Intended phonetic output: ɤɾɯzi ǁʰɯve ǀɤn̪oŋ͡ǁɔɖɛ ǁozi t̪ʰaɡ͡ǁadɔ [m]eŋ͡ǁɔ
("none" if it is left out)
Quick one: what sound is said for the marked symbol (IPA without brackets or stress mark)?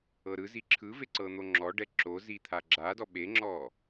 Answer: ɓ